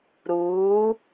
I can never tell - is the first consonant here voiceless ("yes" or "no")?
no